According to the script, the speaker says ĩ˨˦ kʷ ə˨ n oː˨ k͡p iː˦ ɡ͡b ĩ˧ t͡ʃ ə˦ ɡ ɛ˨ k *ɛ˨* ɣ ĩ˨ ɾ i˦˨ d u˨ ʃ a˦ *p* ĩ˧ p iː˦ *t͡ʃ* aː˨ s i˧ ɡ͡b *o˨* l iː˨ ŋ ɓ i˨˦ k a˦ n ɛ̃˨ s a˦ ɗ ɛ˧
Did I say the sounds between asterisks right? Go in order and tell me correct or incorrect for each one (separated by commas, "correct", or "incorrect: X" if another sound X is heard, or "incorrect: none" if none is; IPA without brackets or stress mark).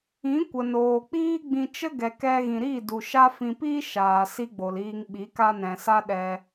incorrect: ɛ˧, incorrect: f, incorrect: ʃ, correct